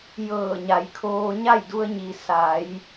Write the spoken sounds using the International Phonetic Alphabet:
j ɤː˧˩ ɲ a˩˧ j kʰ oː˧ ɲ a˥˨ j d u˧ ə̯ ɲ i˩ s a˩˧ j

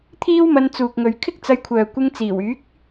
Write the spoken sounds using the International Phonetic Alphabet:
t̪ʰ iː˥ w m ɐ˧ n t͡s uː˨ k̚ ŋ ɵ˨ ɥ kʰ ɪ˥ k̚ t͡s ɐ˧ j kʷʰ œː˨ kʷ ɪ˧ ŋ t͡s iː˨˩ w yː˨˥ k̚

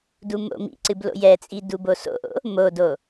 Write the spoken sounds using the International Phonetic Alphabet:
d u m o̰ m ḭ ǀ ɨ b l o̰ j ɛ t͡sʼ i d u b o s o̰ ʔ o̰ | m o d o

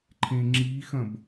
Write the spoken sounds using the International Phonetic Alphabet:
ǃʰ ẽ ŋ͡ǁ i x ɐ̃ b

